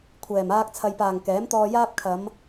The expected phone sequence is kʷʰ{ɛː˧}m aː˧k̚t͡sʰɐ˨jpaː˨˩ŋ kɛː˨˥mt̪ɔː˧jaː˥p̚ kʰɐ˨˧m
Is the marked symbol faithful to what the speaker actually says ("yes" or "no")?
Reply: no